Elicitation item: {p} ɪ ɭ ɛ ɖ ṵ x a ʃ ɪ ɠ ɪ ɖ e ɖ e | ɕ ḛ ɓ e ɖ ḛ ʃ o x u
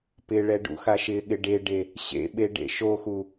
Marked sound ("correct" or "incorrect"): correct